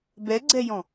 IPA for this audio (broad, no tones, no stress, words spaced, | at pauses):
bɛɡ͡ǀɛjɔ̃